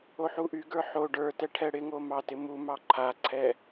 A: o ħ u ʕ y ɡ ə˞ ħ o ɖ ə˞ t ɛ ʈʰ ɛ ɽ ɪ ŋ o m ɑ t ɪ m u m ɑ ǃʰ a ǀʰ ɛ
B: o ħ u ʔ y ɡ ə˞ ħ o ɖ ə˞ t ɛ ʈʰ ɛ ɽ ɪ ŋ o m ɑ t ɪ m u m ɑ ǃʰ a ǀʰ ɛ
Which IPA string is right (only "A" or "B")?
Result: B